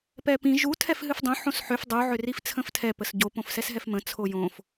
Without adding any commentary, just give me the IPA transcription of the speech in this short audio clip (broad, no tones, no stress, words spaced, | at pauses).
pɛpĩ ʒu tʰɛfɦɨfdˤõ ħõsħʏf dˤu ʕʏrift͡sʰə̃ftʰɛ pəsɟo põfsɛsɦɛfmə̃ t͡sʰojõf